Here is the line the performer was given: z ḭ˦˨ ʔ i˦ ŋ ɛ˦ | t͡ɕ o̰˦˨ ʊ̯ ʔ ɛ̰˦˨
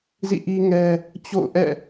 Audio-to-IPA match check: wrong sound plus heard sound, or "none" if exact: none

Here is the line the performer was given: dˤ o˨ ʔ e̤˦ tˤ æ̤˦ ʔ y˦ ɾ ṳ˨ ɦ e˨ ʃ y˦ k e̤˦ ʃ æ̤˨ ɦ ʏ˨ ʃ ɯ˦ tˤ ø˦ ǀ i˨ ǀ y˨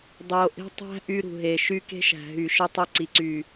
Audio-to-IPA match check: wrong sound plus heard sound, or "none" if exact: ʏ˨ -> y˨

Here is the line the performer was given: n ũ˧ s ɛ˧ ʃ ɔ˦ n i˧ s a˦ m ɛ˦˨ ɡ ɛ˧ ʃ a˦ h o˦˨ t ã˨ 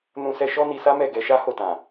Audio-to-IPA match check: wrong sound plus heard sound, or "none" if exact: none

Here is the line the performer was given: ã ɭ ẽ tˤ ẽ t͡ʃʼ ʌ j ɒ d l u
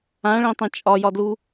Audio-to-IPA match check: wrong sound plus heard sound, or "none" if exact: ʌ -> ɒ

